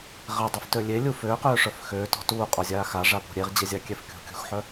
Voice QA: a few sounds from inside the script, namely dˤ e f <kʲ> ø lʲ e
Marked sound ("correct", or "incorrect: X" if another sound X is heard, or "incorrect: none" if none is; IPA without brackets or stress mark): incorrect: t